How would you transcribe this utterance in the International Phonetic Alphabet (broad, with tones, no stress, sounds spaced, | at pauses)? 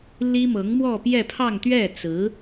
l i˥ m ɤ˧˥ ŋ m w ɔ˥˧ p j ɛ˥˧ pʰ ɑ˥˧ ŋ t̪ ɥ ɛ˥˩ t͡s ɹ̩˧˥